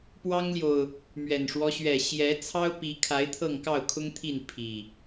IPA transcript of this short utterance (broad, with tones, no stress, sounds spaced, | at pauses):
p w ɑ˦ ŋ l j o˨ ʊ̯ | m ɥ ɛ˨˩ n ʂ w ɔ˦ ɕ ɥ ɛ˨˩ ɕ j ɛ˨˦ t͡sʰ ɑ˦ ʊ̯ p i˨˦ kʰ a˨˦ ɪ̯ t̪ʰ ɤ˥˨ ŋ k ɑ˥˨ ʊ̯ kʰ ʊ˦ ŋ t̪ʰ i˥˨ n pʰ i˨˩